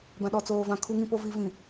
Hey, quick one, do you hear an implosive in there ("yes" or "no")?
yes